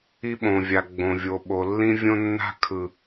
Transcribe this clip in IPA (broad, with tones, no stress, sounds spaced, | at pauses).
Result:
i˦ ɓ õ˨ vʲ a˨ ɡ͡b õ˨ vʲ o˨ ɓ o˨ lː ĩ˦ vʲ õ˦ nː a̤˦ kʰ ɯ˨